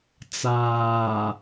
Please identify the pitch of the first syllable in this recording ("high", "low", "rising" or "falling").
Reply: low